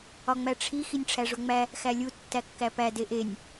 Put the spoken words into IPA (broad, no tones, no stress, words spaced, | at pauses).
ɒŋ͡mæʈ͡ʂʰi xinʲʈ͡ʂʰæʐoŋ͡mæ | xælʲu tːækːæpæ deʔenʲ